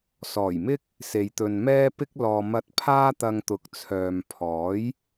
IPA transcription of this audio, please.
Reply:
s ɔː˨˩ j m ɪ˥ k̚ | s e˨ j t̪ ɵ˨ n m ɛː˥ p ɪ˥ k̚ l ɔː˨ m ɐ˧ t̚ pʰ aː˥ t̪ ɐ˧ ŋ t̪ ʊ˨ k̚ t͡sʰ œː˨ m pʰ ɔː˨˥ j

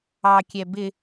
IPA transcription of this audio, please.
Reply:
ɑ kʲ ɛ b ɪ

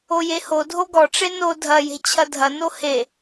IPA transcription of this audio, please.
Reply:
o j e h o dʱ o ɡ ɔ ʈ͡ʂ e n o dʱ ɐ j e̤ t͡ɕʰ ɐ dʱ ɐ n o h e

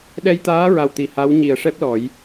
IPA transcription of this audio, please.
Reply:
ɗ ɛ˧ j t̪ aː˧˥ ɹ a˨˩ w t̪ i˨˩ h a˧˥ w ɲ i˨˩˨ ə̯ ʂ ɛ˦˥ p̚ l ɔ˨˩˦ j

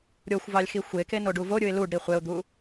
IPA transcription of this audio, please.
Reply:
ɾʲ o xʷ v ɑ lʲ x i xʷ e k e n o ɖ u v o ɾʲ ɯ ɪ̯ l u ɖ ɾ i χʷ e ʊ̯ d̪ u

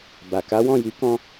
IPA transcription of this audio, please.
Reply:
b a˨ k a˨˦ w ɔ̃˦˨ j i˨˦ k ɔ̃˧

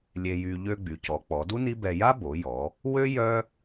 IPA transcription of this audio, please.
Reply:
lʲ e˧ j y˧ ʎ ø˧ ɡ͡b y˩˧ c ɔ˩˧ k͡p ɔ˩˧ d u˥ n i˥ b ɛ˧ j a˥ b o˩˧ j ɔ˩˧ | w ø˥ j œ˥

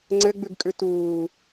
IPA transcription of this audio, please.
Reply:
ŋ͡ǀ ɘ ɡ͡b ʉ ɡ kʼ ʉ t uː

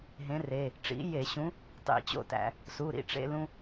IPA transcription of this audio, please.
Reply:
ɦ ẽ˨˥ r e˩˧˩ | ʈ͡ʂ ḭ˨˥ j e˧˩˧ ɕ ũ˨˥ | tˤ ḭ˧˩˧ t͡ɕ o̰˥˨ t æ̰˧˩˧ | s u˩˧˩ ɾ ḭ˩˧˩ ʈ͡ʂ ḛ˧ l ũ˧

